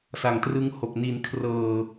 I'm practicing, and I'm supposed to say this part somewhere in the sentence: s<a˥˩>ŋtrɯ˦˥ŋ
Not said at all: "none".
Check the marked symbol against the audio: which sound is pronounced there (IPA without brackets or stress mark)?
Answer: a˨˩